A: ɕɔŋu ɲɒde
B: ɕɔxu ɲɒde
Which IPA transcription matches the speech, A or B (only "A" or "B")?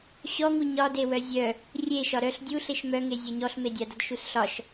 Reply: A